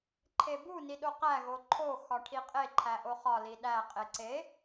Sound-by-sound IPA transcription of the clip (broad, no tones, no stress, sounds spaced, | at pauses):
ǃʰ e b u n i ɗ o q æ ɣ o ǃʰ o x ɒ ʈʰ i qʼ e ǃʰ æ ʔ o χ ɒ l i ɗ æ qʼ e ǀ e